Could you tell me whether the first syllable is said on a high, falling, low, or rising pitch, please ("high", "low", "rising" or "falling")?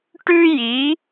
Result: high